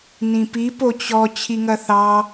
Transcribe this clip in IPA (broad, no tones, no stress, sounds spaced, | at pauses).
n ĩ p i p o t͡ɕ ɔ t͡ɕʰ i ŋ ɐ θ ɑ